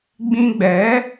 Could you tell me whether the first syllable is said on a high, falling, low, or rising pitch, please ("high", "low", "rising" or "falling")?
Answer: high